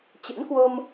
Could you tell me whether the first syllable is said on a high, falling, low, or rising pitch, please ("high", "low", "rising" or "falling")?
rising